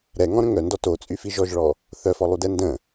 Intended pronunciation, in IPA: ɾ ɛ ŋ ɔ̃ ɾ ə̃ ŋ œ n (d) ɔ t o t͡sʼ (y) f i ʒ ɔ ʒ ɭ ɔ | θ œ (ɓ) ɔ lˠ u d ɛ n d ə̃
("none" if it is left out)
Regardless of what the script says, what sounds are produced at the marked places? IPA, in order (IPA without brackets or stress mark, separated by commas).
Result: d, y, f